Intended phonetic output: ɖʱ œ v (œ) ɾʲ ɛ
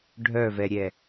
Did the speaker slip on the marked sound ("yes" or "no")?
yes